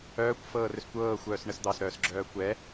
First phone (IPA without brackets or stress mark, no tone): œː